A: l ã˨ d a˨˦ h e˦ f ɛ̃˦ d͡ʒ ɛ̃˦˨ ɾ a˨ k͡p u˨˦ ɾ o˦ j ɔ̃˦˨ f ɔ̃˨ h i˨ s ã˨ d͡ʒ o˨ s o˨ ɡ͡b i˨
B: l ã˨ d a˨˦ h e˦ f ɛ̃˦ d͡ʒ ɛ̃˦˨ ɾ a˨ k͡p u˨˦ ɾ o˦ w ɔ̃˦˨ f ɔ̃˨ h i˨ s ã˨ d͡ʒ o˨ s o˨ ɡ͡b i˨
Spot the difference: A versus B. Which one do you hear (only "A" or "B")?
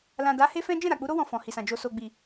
B